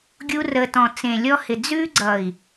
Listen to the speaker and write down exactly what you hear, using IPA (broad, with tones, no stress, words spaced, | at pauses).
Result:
ɡʲu˧rə˨ tɔ̃˨t͡sẽ˨lʲɔ˧hɪ˨ d͡zʉ˧ɡ͡ǀʌ˨i̯